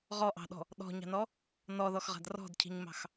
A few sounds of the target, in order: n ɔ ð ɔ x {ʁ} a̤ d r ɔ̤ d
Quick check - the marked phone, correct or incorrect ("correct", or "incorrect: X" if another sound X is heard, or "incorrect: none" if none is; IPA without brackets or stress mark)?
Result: correct